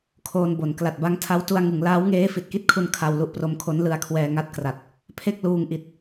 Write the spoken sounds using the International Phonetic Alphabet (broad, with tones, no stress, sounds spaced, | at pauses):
kʰ oː˧ n b o˩˦ n k l a˨˩ t̚ b a˦˥ ŋ tʰ a˦˥ w t u˧ a̯ ŋ ɯ˩˦ ŋ l aː˦˥ w ŋ eː˦˥ f i˨˩ t̚ k i˥˩ t̚ kʰ u˧ n kʰ a˧ w l u˦˥ ʔ p r o˦˥ m kʰ o˦˥ n l ɯ˧ a̯ kʰ w ɛː˧ ŋ a˦˥ t̚ k r a˨˩ t̚ | pʰ e˥˩ k̚ l uː˧ ŋ ʔ i˨˩ t̚